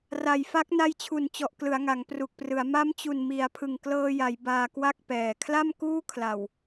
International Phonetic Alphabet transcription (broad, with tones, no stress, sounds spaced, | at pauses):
r a˨˩ j f a˦˥ k̚ n a˧ j t͡ɕʰ u˨˩ n t͡ɕ ɔ˨˩ ʔ k l ɯ˩˦ a̯ ŋ a˩˦ ŋ p r u˨˩ k̚ p r ɯ˩˦ a̯ m a˦˥ m t͡ɕ u˨˩ n m i˩˦ a̯ pʰ ɯ˨˩ ŋ k l ɤː˧ j a˩˦ j b aː˧ k w a˥˩ k̚ p ɛː˨˩ kʰ l a˥˩ m k uː˥˩ kʰ l a˨˩ w